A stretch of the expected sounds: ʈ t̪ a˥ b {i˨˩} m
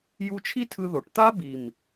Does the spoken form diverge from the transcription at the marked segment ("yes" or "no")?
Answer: no